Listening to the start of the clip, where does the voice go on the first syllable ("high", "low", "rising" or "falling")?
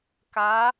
rising